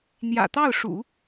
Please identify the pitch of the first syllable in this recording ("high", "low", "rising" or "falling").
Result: low